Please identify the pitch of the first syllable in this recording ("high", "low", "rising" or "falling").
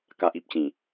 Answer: low